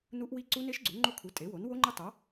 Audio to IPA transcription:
n u˦˥ ʔ w i˦˥ ǀ u˦˥ n e˦˥ ʃ ɡ͡ǀ u˩˥ ŋ͡ǃ o˦˥ kʰ u˩˥ tʼ e˩˥ w o˩˥ n w o˦˥ ŋ͡ǃ ɪ˦˥ tˤ o˩˥

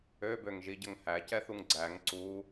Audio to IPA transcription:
ø b ø ŋ ʒ i ɟ ə ŋ h æ c ɛ θ u ŋ ɡ͡ǀ æ ŋ ǀ u

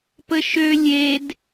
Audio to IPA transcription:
p ə ʃ ø lʲ e d

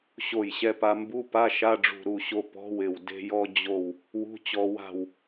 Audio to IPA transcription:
ɕ o˧˩ j ɕ ɛ˧ p a˧ m b u˧˥˧ p a˧˥˧ ʃ a˧˥˧ ɖ͡ʐ ṳ˧˩ ɾ u˧˩ ɕ o˧ p ɔ̤˧˥˧ w ɪ˧˩ w d e̤˧ j ɔ˧ d͡ʑ o˧˩ w | w ṳ˧˥˧ t͡ɕ ɔ˧ w a̤˧˩ w

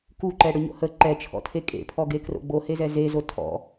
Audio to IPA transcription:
k u ǃ ɛ ɽ ʏ ɲ o̰ h ə ǃ ɛ t͡ʃʰ ɔ̰ tʰ e kʼ ḛ pʰ ɔ ɡ e k r o̰ ɡ͡b o h e z ɛ z e z o tʰ ɔ̰

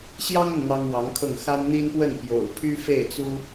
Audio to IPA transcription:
ɕ j ɑ˥ ŋ ə˨ n n̪ ɑ˥ ŋ w ɑ˧˥ ŋ kʰ ɤ˥˩ ŋ x a˥ n n̪ i˥ n p w ə˥˩ n p j o̰˨˩ ʊ̯ pʰ y˥ f e˥˩ ɪ̯ t͡s u˥

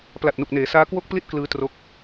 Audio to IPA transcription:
p l a˨˩ t̚ n u˨˩ k̚ n eː˩˦ s aː˦˥ k w o˥˩ k̚ p l i˥˩ t̚ k l ɯː˧ t r o˦˥ k̚

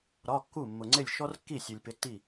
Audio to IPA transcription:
ɾ ɒ˧˥˧ kː u˥˩ mː ʊ˨ ŋ͡ǀ ɪ˥˩ lʲ ʃ ɔ˥ r kː i˥˩ sʲ u˨ lʲ p ɪ˧˥ tː i˥˩

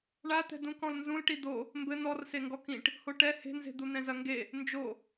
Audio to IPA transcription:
ɳ a t̪ ɛ̤ d ũ k ɔ̃ l n z ũ l ʈ i d̪ o | m b ɘ n̪ ɔ r s e ŋ ɡ ɔ k ĩ ʈ | h o ʈ ɛ h e̤ n z e̤ d̪ u n̪ ɛ̃ z ɐ ŋ ɡ e | n d͡ʒ o

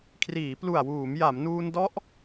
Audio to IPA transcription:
kʰ r iː˩˦ p l u˨˩ a̯ w uː˩˦ m j a˩˦ m n uː˧ n d ɔ˦˥ ʔ

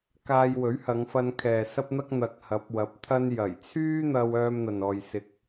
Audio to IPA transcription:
k aː˧ j w ɵ˨˥ ɥ h ɐ˨˧ ŋ f ɐ˧ n kʰ ɛː˨ s ɐ˧ p̚ n̪ ɐ˧ k̚ n̪ ɐ˨ k̚ h ɐ˨˥ p̚ w ɐ˨˥ p̚ t̪ʰ ɐ˧ n j ɐ˨˩ j t͡sʰ yː˥ n̪ ɐ˧ w œː˧ m n̪ ɐ˨ n ɔː˨ j s ɪ˨ k̚

